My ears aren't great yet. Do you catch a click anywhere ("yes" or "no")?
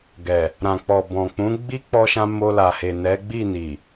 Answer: no